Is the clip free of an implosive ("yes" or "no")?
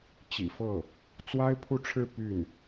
yes